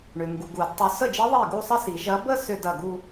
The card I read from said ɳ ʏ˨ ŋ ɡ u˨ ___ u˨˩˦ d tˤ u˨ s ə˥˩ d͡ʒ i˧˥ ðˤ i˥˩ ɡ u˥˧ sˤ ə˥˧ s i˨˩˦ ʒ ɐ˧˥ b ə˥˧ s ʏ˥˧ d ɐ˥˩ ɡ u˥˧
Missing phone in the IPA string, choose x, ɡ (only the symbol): ɡ